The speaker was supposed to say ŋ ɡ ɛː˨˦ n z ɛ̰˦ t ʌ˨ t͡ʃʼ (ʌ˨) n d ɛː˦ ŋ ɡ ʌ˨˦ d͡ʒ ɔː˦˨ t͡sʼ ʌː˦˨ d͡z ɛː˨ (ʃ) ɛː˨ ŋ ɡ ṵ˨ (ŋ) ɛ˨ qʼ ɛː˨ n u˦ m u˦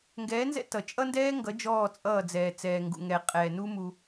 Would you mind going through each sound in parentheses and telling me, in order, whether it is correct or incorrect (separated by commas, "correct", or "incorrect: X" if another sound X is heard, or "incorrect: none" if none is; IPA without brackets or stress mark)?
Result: incorrect: ʌ˦, incorrect: t͡s, correct